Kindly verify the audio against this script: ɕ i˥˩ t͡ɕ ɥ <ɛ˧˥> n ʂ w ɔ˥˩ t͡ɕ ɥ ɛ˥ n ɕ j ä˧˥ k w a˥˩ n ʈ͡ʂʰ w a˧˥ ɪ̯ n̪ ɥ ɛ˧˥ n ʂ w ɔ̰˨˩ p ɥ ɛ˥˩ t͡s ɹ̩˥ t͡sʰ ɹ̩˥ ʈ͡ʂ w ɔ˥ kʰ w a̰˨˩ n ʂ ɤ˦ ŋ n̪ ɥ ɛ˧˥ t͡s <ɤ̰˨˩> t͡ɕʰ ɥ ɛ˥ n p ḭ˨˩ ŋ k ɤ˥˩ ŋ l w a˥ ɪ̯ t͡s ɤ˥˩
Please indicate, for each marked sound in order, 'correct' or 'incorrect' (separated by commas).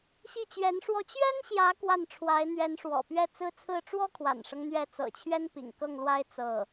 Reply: correct, correct